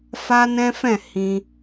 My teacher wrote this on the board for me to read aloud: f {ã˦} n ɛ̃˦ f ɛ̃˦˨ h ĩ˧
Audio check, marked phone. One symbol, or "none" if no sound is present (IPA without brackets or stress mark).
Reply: a˦